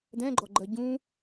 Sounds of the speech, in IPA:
d̪ ɛ̃ ɡ͡ǃ ɔ ɡ͡ǃ ɜ ɟ ũ

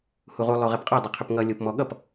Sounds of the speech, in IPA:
h u ʁ u lˠ o ʁ ɛ p qʼ ɔ dˤ ʌ qʰ ʏ p ŋ ʌ lʲ o p m ɔ ɠ ʌ p

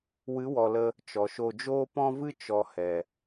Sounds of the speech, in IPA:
w ɨ˨˦ w ɔ˨ l ə˧ | t͡ʃ ɔ˨ ʃ o˧ d͡ʒ oː˧ p ɔ̃˧ v ɨ˧ t͡ʃ ɔ˨ h ɛ˨

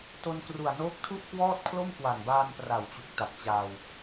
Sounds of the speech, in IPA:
t o˧ n k r u˨˩ a̯ n oː˦˥ k̚ tʰ u˥˩ ʔ k w ɔː˥˩ t̚ kʰ l o˥˩ m k w a˨˩ n b aː˧ n p r a˨˩ w t͡ɕ u˨˩ k̚ t a˨˩ p̚ t͡ɕ aː˧ w

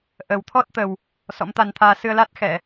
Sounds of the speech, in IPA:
ʔ ə˨˩ w t̪ʰ ɔ˦˥ t̚ t̪ ə˨˩ w | s ɔ̰˧˥ m t̪ a˧ n t̪ʰ aː˧ s ɨ˧ ə̯ l a˦˥ t̚ x ɛ˧˩˨

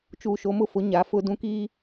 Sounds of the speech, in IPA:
t͡ʃ uː˨ ʃ o˨˦ m ʊ˦ f ʊ˨˦ ɲ a˨ f ʊ˦ d ũ˦ k i˦

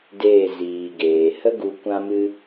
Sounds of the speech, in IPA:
d eː˦˨ z iː˨ ɡ eː˨ h ə˦ ɡ u˧ kʷ ã˦ m ɨ˦

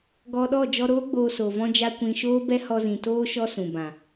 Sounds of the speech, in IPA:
ɡ ɔ˧ ɗ ɔ˦˨ d͡ʒ ɔ˧ ɾ oː˦ ɡ͡b oː˧ s oː˨ v ɔ̃˦ d͡ʒ a˦ kʷ ĩ˧ ʃ oː˦ b ɛ˦ h ɔ˧ z ĩ˨ t oː˦ ʃ ɔ˦ s ũ˨ b ã˨

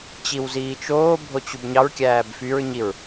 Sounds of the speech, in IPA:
t͡ɕ i w z iː t͡ʃ oː bʱ o t͡ɕ u b ɲ ɑ ɹ kʲ æː b f y ɹ ɲ i ɹ

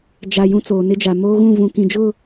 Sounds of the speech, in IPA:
d͡ʒ a˨ j ũ˦ t͡s oː˨ n ɪ˦ d͡ʒ a˨ m oː˦ ɣ ũ˦˨ v ũ˨ k ĩ˨ d͡ʒ ʊ˦˨

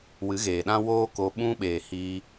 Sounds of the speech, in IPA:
w ɨ˨˦ ɣ eː˨ ɗ ã˦ w oː˦ k o˧ ɓ ũ˧ ɓ eː˨ h iː˧

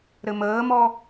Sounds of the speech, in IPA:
ɾ ɘ m əː m ɔ

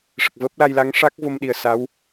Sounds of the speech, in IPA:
ʂ ə˨˩ k̚ v əː˦˥ p̚ l a˧ j l a˧˥ ŋ ʂ a˦˥ k̚ v o˧ m ɗ i˨˩ ə̯ s a˧˥ w

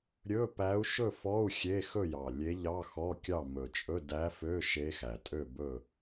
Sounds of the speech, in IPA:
ɾʲ ɵ˧˥˧ p æ˧˥ u̯ ʃ ɵ˥˨ f ɔ˧˥˧ u̯ xʲ e˧˥˧ x ɵ˥˨ j ɑ˨˩ lʲ e˧˥ ʎ ɑ˧˥˧ x ɔ˧˥˧ kʲ ɑ˥˨ m ɵ˨˩ t͡ʃʼ ɵ˧˥˧ d æ˧˥ f ø˧˥˧ ʃ e˧˥ x æ˨˩ tʼ ø˥˨ b ɵ˥˨

